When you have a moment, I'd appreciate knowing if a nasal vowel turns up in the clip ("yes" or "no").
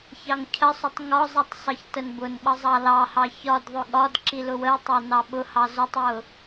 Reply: no